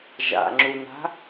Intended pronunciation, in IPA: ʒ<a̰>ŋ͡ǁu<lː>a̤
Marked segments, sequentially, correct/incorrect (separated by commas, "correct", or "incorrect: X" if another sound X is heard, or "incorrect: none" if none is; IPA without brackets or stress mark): correct, incorrect: n